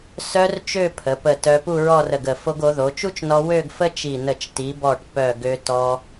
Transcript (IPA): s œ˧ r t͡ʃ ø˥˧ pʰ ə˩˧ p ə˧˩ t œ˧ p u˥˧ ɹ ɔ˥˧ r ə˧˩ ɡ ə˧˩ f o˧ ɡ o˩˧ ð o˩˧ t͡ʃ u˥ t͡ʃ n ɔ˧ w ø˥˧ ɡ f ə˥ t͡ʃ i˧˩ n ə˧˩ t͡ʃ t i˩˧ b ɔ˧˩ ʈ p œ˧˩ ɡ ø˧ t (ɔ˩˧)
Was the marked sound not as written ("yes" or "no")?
yes